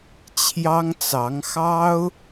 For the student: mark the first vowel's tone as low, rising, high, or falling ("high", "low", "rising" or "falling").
high